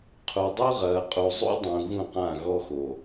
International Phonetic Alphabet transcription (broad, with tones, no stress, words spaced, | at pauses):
qʰu˨dˤu˦ʁɐː˨qʼu˨ zˤṵ˦dˤũ˨ ɣũ˦˨qã˦˨ɣɔ˦ xo˨